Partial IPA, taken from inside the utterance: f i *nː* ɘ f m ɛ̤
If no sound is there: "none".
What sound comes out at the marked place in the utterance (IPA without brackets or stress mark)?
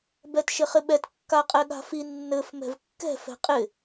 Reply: nː